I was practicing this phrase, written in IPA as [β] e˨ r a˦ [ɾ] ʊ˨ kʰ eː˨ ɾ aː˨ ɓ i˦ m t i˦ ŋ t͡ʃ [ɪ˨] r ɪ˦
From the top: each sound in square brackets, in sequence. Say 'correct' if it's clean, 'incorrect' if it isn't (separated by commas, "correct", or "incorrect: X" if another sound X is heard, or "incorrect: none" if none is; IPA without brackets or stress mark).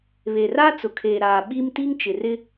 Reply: correct, incorrect: t͡s, correct